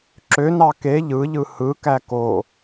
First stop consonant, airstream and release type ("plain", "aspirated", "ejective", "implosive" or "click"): click